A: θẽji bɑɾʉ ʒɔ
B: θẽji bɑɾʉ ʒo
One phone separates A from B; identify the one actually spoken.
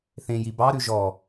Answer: A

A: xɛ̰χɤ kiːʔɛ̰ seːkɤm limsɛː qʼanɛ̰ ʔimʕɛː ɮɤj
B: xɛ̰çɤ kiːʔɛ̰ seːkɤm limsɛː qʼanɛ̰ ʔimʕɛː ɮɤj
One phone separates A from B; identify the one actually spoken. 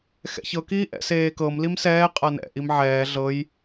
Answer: B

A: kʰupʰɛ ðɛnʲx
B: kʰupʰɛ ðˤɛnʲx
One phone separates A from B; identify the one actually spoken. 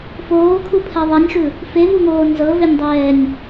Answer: B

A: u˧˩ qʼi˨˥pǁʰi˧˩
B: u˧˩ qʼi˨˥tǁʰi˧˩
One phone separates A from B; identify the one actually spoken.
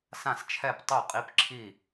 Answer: A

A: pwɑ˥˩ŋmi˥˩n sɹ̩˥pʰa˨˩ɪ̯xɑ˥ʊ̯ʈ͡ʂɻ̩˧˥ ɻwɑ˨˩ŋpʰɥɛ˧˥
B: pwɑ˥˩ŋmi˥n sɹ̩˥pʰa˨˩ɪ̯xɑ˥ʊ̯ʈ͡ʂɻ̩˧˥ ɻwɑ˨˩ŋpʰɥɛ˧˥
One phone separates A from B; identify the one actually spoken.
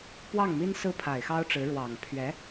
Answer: B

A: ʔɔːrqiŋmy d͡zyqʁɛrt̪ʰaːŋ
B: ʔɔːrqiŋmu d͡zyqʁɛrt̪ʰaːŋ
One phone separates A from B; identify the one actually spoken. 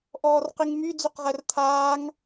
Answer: A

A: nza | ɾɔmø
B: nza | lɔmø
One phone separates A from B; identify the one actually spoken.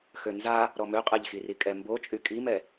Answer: A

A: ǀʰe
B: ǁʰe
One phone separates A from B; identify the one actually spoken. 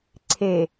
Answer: A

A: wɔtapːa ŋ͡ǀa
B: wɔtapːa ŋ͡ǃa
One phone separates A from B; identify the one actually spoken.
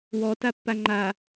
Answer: B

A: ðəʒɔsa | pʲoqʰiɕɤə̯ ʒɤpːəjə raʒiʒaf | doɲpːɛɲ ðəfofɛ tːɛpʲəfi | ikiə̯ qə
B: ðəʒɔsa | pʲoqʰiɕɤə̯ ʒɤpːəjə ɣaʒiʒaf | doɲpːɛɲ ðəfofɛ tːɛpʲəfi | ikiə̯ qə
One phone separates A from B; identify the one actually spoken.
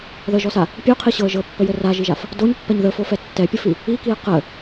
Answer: A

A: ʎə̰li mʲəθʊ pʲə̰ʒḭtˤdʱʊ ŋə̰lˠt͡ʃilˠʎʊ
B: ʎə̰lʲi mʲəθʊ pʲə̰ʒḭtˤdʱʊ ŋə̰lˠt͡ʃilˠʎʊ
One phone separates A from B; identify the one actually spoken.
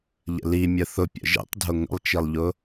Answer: A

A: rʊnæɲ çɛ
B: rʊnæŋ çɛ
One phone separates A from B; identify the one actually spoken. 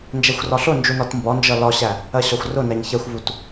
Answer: A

